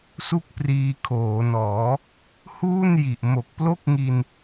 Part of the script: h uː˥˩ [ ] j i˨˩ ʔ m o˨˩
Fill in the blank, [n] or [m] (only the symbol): n